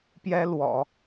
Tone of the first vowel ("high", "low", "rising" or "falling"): high